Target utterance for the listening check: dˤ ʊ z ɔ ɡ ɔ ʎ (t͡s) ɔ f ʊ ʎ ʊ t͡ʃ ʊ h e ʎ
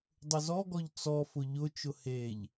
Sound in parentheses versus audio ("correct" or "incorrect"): correct